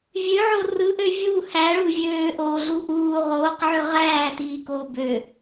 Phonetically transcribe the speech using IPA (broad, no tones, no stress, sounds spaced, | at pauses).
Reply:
vʲ ø ʕ o r ɯ ʔ ø vʲ u h æ ɭ u vʲ øː ʔ oː ɮ u ʔ uː ʁ oː q ʕ ø ʁ æː t iː k oː b ø